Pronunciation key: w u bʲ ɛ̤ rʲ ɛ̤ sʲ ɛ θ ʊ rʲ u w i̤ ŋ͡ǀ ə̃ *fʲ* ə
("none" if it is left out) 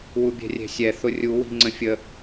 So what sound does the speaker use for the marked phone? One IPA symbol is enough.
fʲ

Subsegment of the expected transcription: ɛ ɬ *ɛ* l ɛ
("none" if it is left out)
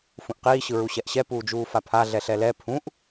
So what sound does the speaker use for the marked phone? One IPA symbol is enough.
ɛ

